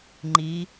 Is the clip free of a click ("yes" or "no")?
no